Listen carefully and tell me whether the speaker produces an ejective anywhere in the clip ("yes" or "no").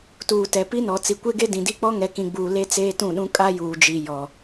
yes